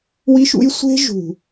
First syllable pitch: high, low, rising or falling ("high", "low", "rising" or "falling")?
high